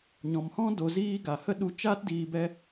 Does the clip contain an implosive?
yes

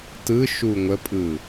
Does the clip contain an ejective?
yes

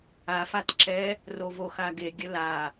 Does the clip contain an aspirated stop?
no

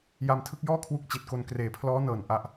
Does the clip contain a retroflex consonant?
no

